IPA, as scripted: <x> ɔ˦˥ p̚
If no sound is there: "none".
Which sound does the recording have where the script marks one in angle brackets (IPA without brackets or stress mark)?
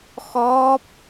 x